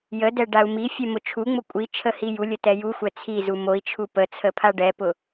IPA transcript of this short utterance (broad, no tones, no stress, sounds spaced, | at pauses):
j ə d ɛ ɖ a u̯ m i fʲ ɛ m ʊ t͡ʃʰ u ŋ͡m ʊ kʷʼ i t͡ʃʰ ə h i j u lʲ ə t ɛ j u xʷ ɛ t͡sʰ i z u m o i̯ t͡ʃʰ u p ə t͡sʰ ə pʰ a ɖ ɛ p ʊ